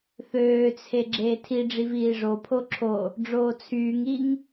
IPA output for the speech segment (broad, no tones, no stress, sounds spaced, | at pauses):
θ øː t͡sʰ e ɡ͡ǁ eː tʰ i ɖ͡ʐ i v iː ʐ o pʰ o ǁʰ o | ɖ͡ʐ oː t͡sʰ yː ŋ iː ŋ